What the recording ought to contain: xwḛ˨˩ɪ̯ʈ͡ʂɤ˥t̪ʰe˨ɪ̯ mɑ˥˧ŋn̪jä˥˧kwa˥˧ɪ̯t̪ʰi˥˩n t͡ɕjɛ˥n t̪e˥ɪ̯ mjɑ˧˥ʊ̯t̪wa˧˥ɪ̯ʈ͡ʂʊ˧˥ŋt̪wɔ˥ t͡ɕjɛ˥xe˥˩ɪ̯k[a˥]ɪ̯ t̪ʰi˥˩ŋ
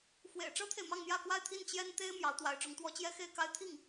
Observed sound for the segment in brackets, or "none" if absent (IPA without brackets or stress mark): a˥